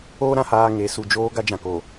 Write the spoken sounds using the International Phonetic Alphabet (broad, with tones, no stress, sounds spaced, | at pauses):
oː˦ ɾ ã˨ h aː˨ ŋ e˨˦ s u˨ d͡ʒ oː˦ ɡ a˦ d͡ʒ ã˨ k oː˨